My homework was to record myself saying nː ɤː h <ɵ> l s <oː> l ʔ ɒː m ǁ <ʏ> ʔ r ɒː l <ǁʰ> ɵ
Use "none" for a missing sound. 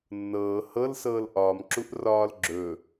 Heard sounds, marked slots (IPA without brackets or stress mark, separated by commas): ɤ, ɤː, u, ɡ͡ǁ